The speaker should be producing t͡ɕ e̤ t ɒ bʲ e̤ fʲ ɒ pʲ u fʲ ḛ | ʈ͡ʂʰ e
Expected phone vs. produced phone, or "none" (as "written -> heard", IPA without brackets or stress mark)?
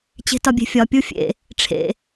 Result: e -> ḛ